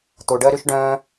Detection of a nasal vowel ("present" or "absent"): present